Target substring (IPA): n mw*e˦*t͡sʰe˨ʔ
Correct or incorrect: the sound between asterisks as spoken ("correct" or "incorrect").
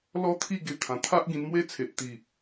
correct